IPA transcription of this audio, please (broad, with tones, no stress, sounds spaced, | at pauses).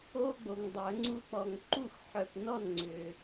o˦ ɡ͡b o˨ ŋ dˤ œ˨˩˦ ŋ͡ǀ u˦ k͡p ɔ˨ ŋ ǃ u˥˩ x ħ œ˨ p n ɔ˥˩ n ŋ͡ǀ ʏ˨